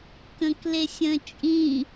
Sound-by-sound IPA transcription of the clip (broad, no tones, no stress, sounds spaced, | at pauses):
k ə̃ k l e sʲ ə̃ t͡ʃʼ ĩ